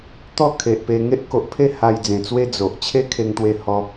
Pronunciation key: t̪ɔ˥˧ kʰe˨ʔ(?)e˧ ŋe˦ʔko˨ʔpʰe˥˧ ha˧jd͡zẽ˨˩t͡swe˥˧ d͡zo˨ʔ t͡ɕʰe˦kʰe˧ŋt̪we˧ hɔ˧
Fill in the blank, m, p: p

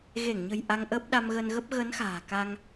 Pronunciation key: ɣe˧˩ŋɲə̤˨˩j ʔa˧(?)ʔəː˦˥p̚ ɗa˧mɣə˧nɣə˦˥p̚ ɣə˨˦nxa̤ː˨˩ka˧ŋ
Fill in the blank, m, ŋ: ŋ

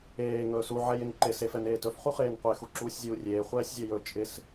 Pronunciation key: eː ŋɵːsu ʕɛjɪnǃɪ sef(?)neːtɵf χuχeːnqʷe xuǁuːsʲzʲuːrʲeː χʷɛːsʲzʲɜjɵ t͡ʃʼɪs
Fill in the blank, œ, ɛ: ɛ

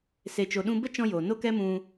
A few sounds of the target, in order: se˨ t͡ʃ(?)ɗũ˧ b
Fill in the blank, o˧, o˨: o˨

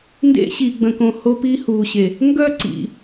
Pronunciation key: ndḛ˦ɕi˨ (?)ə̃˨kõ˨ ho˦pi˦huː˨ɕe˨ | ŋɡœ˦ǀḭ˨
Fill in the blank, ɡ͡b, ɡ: ɡ͡b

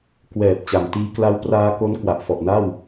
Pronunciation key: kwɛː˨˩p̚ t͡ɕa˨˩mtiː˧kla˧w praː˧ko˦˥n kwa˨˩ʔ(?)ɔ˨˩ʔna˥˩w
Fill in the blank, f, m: f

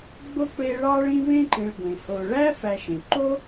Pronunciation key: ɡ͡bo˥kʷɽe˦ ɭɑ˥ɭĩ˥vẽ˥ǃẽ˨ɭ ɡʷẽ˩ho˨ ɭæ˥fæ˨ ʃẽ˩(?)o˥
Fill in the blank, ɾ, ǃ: ǃ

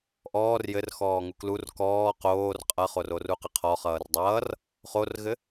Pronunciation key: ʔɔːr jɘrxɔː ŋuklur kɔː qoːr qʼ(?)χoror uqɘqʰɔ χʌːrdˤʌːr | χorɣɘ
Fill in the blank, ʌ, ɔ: ʌ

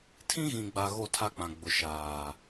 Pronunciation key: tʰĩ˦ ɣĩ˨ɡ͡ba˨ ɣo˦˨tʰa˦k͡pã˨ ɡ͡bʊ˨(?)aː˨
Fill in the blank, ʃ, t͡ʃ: ʃ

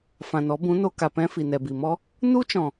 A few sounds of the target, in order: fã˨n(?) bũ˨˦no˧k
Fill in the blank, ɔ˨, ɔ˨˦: ɔ˨˦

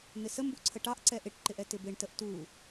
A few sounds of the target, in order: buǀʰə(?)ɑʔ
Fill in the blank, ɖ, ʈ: ʈ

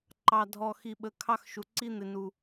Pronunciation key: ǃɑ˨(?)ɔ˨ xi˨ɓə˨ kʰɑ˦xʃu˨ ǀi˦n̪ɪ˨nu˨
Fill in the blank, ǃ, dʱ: dʱ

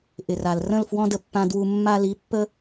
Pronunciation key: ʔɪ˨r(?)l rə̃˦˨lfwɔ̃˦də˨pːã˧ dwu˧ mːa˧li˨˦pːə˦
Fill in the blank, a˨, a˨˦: a˨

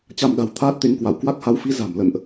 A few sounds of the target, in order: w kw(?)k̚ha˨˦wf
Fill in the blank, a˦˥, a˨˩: a˦˥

